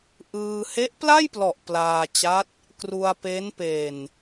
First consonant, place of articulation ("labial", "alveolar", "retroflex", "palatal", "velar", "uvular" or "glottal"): glottal